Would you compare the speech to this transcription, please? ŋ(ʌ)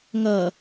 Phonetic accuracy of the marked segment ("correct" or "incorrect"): correct